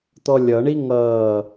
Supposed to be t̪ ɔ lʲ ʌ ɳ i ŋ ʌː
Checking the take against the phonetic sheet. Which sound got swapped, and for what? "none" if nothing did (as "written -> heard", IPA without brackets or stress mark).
none